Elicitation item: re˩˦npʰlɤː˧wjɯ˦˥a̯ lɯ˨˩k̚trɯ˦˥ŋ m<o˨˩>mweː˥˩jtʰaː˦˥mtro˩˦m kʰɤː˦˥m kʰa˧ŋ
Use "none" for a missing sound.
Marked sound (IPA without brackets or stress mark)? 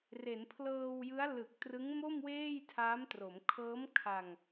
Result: o˥˩